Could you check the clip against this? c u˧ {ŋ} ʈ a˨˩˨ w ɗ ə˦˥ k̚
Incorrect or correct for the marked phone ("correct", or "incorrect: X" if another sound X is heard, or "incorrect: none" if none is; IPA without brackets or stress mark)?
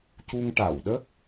correct